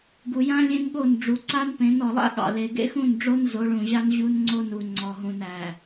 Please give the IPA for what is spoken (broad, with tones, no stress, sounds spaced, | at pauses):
ɡ u˨ j ã˦ lʲ ẽ˦ n ɠ o˦˨ n ɖ͡ʐ u˨ ǀ a˦ n p ẽ˨˦ n ɔ˨ lˠ a̰˦ ɠ ɑ̰˨ l e˨ ɡ ḛ˦ x ũ˦˨ n ɖ͡ʐ o˦ n z o˨˦ ɭ ũ˨ ʑ a˦ n ʑ u˦ n ŋ͡ǀ o˦ n u˨ ŋ͡ǀ ɔ˨ ɦ ũ˨ n æ˨